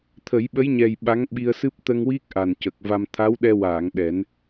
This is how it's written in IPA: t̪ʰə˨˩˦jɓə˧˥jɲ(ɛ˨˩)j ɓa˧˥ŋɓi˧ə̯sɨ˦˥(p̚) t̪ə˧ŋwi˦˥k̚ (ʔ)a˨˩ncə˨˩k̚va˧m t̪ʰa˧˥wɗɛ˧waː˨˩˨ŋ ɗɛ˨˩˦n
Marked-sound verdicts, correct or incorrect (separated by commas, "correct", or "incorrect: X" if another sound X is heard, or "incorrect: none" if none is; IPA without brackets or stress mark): correct, correct, correct